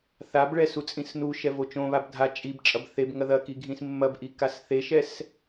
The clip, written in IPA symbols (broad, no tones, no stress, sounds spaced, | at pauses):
θ a b ɭ ɛ s u t͡sʼ ĩ s n u ʃ ɛ v o t͡ʃ õ β a b dʱ a t͡ʃʼ i b t͡ʃʼ ɐ b θ e b ŋ ɐ ð ɐ k i ɡʱ ĩ s mː ɐ b ʔ i k a s θ e ʃ ɛ s